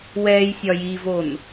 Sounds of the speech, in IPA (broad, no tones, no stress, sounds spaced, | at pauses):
w ɛː j sʲ ɒ j i v o n